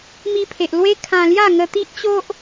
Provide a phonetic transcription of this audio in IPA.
m i˧ pʰ e˨ ʔ l w e˦ kʰ ã˧ l j a˥˧ ŋ ə˧ t̪ i˦ ʔ t͡ɕ o˦ ʔ

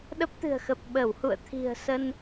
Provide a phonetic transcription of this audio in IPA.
ɗ ə˦˥ p̚ t̪ ɨ̤˨˩ ə̯ x ə˨˩ p̚ ɓ ə˧˩ w h ṵ˧˨ ə̯ t̪ʰ i̤˨˩ ə̯ s ə˧ n

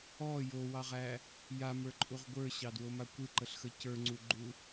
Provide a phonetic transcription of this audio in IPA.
ɔ j o w ɑ ʁ æ | j a m ə˞ ǃʼ u ʁ ɡʷ ə˞ ɕ ɑ d w o m a kʷ ɨ ǃ ə ɬ x ə c ə˞ ŋ͡ǀ u ɡ͡ǃ u

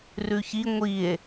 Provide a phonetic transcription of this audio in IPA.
r ʉ ç i ŋʷ i e̯

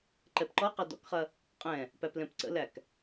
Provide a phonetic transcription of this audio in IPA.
ǃ ɛ p ǃ ɔ q ɐ d ɔ̰ k χ ɐ | qʼ ɛ̃ | p æ p l ɛ̃ p ǀ ə̰ l æ k

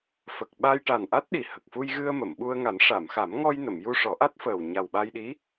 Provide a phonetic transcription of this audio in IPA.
f ə˨˩ k̚ ɓ a˧ j ʈ a˨˩ n ʔ a˦˥ t̚ ɗ i˨˩ h ə˨˩ k̚ f u˧ j ɣ ɨ˧ ə̯ m ə˨˩˨ m ɓ u˧ ə̯ ŋ a˨˩˦ n ʂ a˨˩˨ m x a˨˩˦ m ŋ ɔ˧ j n ə˨˩˨ m j u˧ ʂ ɔ˨˩˦ ʔ a˦˥ t̚ f əː˨˩ w ɲ a˨˩ w ɓ a˧ j ɗ i˧˥

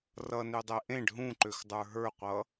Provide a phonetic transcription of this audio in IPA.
r ʌ n ø dˤ ɛ ʔ ẽ ɖ ɦ ũ ǃ ø x dˤ ə˞ ɦ ə˞ qʷ ʌ

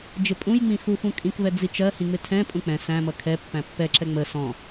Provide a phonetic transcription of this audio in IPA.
d͡ʒ ɪ pʼ ũ j ŋ͡m ĩ x u f ũ kʼ ĩ k v ɛ d͡z i t͡ʃ ɜ h ĩ ŋ͡m ɪ tʰ ɛ̃ pʼ ũ k͡p ɛ̃ s æ̃ m ʌ kʰ ɛ pː æ̃ pː ɛ ǁ ɛ ŋ͡m ə s ɔ̃

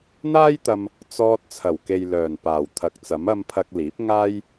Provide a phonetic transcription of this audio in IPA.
n̪ aː˥ j t̪ ɐ˧ m | t͡s ɔː˧ t̚ t͡sʰ ɐ˨˩ w k e˨ j l œː˨˩ n p aː˨˩ w t̪ʰ ɐ˨˥ k̚ t͡s ɐ˨˥ m ɐ˧ m pʰ ɐ˧ k̚ l iː˨˥ p̚ ŋ aː˥ j

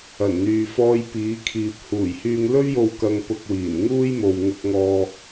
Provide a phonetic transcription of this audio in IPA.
ɐ˨˩ n n̪ yː˨ f ɔː˧ j p iː˨˧ kʰ iː˨ p̚ h uː˨˩ j h yː˧ ŋ l ɵ˥ ɥ j o˧ w k ɐ˧ ŋ p ʊ˧ k̚ w iː˨˩ n ŋ uː˥ j m o˨ w ŋ ʊ˧ k̚ ŋ ɔː˧

